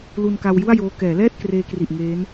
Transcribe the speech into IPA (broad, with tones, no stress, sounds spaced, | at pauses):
l u˧ n k a˧ w j u˥˩ a̯ j oː˦˥ k ɛː˩˦ l ɛː˥˩ t̚ k r eː˧ k r i˨˩ ʔ ŋ eː˦˥ n